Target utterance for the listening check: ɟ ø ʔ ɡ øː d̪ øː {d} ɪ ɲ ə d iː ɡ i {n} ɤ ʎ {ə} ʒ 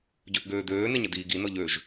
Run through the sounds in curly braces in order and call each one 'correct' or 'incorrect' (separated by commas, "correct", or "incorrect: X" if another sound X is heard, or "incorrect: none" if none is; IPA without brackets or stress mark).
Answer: incorrect: n, correct, incorrect: ø